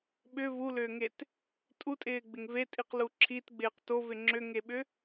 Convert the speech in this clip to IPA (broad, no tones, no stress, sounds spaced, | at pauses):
ɓ ʏ v u l ʏː ŋ e t | tʼ u tʼ ɪː ɡ͡b ɪ ŋ v e tʼ i q l u ǁʰ i t ɡ͡b ɪː q t o v ɪ ŋ͡ǁ ʏ ŋ e ɓ ʏ